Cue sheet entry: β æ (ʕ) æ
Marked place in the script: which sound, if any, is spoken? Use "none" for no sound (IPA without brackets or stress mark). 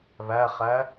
χ